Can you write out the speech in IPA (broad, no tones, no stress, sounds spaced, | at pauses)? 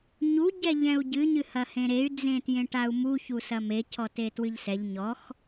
ɲ u ɟ ɛ ʎ ɛ̃ u̯ ɟ ɨ ɲ ɨ h ɐ h ẽ ɾ e y̯ d͡z ẽ t j ẽ ʈ a u̯ m u ç u s ɐ m e c ɔ t e t w ɨ ʎ s ɛ ʎ ɲ ɔ x